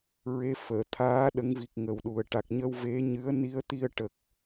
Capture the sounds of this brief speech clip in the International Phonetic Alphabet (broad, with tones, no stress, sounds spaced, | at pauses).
ɹ e˧˥ f əː˨˩˨ t̪ʰ aː˧˥ ɗ ə˧˥ ŋ v i˨˩ k̚ ŋ ə˨˩ w ɗ u˨˩ ə̯ ʈ a˨˩ k̚ ɲ əː˧ w v e˧˥ ɲ ɨ˧˥ ə̯ n i˧˥ ə̯ t̪ i˧ ə̯ ʈ ə˨˩ k̚